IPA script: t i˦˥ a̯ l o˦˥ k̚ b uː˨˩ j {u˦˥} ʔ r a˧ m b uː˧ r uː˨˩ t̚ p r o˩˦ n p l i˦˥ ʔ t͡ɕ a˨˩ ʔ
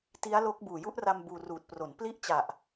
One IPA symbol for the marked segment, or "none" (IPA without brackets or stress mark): u˦˥